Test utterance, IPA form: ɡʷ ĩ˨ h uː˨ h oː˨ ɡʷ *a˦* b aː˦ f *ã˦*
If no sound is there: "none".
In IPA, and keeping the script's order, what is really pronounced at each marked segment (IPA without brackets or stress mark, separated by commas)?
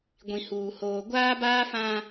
aː˦, ã˦